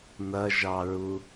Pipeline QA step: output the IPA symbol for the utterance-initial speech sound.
n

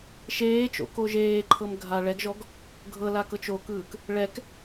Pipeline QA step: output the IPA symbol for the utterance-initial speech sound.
ʃ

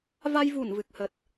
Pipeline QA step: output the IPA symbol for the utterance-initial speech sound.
v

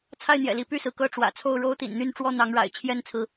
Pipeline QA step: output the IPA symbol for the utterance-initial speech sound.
t͡sʰ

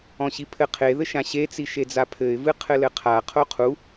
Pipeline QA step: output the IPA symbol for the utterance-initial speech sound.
ɔ̃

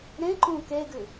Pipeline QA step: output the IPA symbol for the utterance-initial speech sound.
ɾ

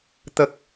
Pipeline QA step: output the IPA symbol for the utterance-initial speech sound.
t̪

